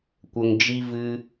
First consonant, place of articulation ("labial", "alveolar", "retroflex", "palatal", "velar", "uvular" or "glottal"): velar